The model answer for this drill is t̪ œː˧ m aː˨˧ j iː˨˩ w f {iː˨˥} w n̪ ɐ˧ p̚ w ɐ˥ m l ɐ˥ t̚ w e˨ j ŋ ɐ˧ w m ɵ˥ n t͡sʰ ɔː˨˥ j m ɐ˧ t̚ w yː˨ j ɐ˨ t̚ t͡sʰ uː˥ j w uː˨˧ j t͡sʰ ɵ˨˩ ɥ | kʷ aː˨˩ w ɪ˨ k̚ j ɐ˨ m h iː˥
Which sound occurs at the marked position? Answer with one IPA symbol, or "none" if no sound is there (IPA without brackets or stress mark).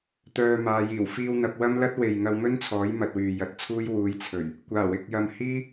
iː˧